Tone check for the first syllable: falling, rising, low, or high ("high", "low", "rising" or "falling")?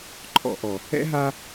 low